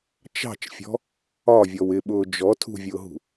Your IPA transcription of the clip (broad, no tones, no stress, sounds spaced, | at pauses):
t͡ʃ ɑ̤ t͡ʃ fʲ ɔ̤ | ɒ vʲ ɔ w ɪ ɓ ʊː d͡ʒ ɔ tʰ ṳ vʲ ʊː ɦ ṳ